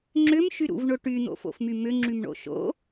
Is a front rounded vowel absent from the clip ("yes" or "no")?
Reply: no